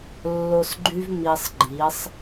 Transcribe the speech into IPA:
lː o˧ s ɡ͡ǃ y˦ v m i˧ sˤ ɡ͡ǃ i˨˦ sˤ

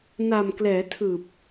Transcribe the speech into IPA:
n a˨˩ m k l ɛː˩˦ tʰ ɯː˨˩ p̚

